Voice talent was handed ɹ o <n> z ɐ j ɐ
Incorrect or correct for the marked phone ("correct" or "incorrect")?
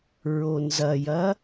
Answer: correct